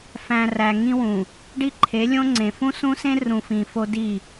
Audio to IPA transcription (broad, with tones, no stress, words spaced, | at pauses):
fæ̃˨ ræ˨ŋĩ˦wũ˨ | ɖi˦ǃʰe˨˦lʲõ˦ŋ͡ǀẽ˨ fũ˦sũ˦sẽ˦ rũ˨fĩ˨fo˦ di˦˨